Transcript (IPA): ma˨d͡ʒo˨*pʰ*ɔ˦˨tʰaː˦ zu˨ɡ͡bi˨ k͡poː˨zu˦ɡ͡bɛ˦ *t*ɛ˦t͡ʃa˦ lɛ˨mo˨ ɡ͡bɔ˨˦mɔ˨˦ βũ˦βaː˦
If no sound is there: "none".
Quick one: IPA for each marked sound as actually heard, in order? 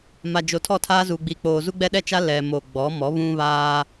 tʰ, ɗ

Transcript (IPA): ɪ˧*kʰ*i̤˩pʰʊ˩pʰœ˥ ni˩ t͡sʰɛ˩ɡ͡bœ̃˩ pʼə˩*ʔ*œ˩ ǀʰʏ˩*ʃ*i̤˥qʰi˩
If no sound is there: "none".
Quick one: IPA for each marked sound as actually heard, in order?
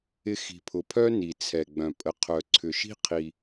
x, qʰ, ʃ

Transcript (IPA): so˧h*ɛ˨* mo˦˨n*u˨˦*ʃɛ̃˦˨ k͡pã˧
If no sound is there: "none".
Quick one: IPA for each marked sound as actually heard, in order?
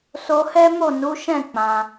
ɛ˦, u˨˦

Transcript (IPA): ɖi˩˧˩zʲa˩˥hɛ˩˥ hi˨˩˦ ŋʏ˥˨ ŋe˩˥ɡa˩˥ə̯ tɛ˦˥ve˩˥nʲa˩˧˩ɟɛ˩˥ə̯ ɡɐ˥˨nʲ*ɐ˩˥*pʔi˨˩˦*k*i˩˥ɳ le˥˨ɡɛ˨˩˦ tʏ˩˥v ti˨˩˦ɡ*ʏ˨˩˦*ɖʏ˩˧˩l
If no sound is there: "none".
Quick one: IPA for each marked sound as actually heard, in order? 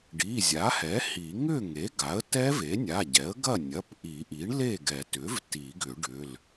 ɐ˩˧˩, ʔ, ʏ˨˩˦

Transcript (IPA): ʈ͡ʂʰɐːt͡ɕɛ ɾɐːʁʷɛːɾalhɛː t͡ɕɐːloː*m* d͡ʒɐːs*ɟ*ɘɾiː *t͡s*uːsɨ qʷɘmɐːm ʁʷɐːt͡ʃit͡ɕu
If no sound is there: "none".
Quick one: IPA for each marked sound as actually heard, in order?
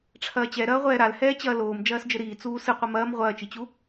m, d͡ʒ, t͡s

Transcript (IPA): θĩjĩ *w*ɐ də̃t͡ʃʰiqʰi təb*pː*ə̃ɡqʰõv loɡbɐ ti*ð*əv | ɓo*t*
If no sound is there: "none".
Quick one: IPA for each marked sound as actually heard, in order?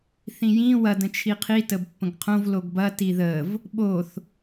w, pː, ð, θ

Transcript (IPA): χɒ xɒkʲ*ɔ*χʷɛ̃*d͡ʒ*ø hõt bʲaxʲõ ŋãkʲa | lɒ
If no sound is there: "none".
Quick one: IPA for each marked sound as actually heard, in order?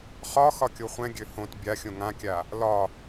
o, ɡʲ

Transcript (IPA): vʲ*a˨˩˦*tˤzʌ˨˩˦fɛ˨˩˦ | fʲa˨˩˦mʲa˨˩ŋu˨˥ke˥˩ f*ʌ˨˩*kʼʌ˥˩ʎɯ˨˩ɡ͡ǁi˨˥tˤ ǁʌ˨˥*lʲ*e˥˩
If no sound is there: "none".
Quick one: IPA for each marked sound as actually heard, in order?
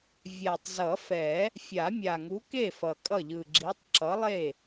a˨˩, ʌ˨˩, lˠ

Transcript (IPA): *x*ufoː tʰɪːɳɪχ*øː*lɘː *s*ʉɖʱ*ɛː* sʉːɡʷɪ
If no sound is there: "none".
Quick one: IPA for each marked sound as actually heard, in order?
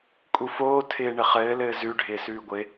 kʼ, ɘː, z, ɪː

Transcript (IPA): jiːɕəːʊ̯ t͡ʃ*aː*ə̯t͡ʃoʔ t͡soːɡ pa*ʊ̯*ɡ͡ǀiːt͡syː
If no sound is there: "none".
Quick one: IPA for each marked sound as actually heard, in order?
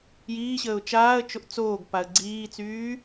aː, ə̯

